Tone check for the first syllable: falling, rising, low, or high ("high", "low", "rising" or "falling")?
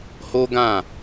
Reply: high